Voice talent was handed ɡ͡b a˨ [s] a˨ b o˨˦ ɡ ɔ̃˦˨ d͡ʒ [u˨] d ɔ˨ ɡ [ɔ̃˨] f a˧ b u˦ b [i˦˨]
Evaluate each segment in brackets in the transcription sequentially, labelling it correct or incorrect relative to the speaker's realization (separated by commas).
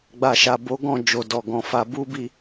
incorrect, incorrect, correct, correct